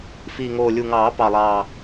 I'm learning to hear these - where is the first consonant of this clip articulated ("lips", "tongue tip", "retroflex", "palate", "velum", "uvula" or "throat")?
lips